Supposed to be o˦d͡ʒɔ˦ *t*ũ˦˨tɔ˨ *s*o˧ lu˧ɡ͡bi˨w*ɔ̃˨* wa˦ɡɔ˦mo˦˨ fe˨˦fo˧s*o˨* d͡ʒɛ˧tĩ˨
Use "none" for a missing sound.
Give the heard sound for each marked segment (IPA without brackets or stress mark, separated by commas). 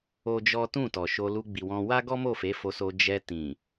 t, ʃ, ɔ̃˧, o˧